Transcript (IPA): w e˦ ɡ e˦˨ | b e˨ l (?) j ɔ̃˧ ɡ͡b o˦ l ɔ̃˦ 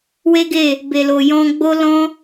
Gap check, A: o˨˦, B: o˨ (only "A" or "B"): B